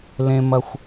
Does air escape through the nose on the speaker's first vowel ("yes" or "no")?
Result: yes